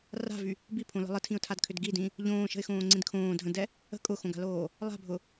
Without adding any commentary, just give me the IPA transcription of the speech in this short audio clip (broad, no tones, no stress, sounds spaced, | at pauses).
r a̤ v y | b i pʰ õ l ə̤ lˠ ə tʰ ĩ ʊ̯ tʰ a d kʰ ʏ d ɡ i d ĩ | ʎ õː ʃ ə̤ ɪ̯ x õː ŋ͡ǀ ĩ d kʰ õː dʱ ə̃ d ɛ | ə̤ kʼ ʊ x õ ɡ a̤ l oː | lˠ a̤ bʱ ʊ